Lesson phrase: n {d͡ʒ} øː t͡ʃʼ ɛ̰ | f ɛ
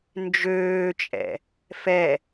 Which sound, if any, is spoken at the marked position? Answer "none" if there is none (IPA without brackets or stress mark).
d͡ʒ